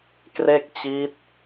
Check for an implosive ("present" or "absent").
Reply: absent